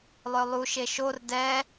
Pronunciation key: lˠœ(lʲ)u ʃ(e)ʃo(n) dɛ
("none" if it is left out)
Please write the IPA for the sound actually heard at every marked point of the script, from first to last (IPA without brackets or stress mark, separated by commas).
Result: lˠ, e, r